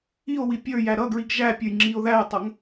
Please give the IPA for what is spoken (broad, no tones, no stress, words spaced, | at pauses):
io̯wi pʲə˞ jæɾʌɡɹiɡ ʒæpʲə˞j ŋ͡ǁio̯ðæjtˤʌŋ